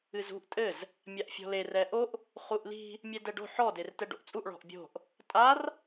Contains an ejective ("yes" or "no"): yes